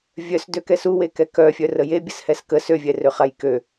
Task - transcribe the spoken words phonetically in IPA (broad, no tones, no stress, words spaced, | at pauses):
vʲœs døkɛsu wekɛkœfʲœ rəje bʲəshɛskə søvʲɛ røχajkø